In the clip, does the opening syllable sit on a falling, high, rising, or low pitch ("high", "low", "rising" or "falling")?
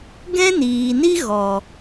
high